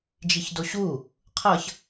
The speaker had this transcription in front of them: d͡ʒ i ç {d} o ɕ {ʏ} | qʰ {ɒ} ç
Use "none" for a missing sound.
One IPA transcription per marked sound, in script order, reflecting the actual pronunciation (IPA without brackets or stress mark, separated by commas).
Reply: d, u, ʌ